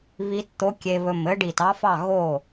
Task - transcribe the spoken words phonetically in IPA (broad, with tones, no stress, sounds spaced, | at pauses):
β i˧˥ t t̪ o˧˥ kʲ e˧ β ɵ˧˩ m ɘ˧˥ ɖ i˧˩ t ɑ˧˥ f ɑ˥˩ ɣ o˥˩